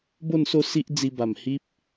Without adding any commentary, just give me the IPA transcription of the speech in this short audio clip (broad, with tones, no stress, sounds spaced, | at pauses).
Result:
b o˥˧ n s o˥˧ s i˦ ʔ d͡z i˧ b a˨˩ m h i˦ p̚